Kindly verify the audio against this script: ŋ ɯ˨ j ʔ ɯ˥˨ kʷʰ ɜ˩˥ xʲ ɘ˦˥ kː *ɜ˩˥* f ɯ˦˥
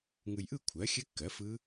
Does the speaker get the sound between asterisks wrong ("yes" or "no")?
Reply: no